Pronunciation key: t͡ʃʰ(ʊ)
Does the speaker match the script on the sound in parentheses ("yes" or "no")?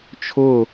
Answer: yes